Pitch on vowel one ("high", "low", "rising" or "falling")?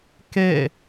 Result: falling